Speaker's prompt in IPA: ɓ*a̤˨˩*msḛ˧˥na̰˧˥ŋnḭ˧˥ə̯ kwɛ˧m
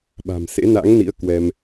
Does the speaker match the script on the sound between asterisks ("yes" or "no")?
yes